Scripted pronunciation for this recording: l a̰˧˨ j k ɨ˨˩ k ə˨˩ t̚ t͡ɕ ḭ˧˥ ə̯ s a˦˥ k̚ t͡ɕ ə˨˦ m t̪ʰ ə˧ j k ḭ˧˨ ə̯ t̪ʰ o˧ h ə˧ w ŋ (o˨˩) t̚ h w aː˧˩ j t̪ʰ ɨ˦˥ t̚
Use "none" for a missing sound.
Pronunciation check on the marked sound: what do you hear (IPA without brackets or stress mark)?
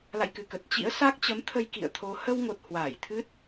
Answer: o˨˩